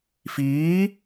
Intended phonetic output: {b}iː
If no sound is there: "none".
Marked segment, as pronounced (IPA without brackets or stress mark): f